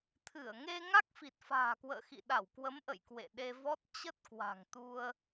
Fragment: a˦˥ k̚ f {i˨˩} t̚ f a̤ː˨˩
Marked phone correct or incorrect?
correct